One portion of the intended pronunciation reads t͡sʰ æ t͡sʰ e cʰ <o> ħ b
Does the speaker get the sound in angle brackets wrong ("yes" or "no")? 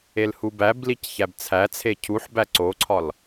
yes